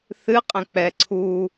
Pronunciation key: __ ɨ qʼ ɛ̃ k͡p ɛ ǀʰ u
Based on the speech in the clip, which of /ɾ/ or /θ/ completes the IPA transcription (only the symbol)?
θ